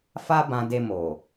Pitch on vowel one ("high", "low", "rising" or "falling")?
high